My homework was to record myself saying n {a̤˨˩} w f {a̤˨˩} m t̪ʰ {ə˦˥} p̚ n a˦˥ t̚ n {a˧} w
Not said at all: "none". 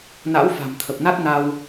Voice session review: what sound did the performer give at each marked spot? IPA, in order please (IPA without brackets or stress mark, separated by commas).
a̰˧˥, a̤˨˩, ə˨˩, a˧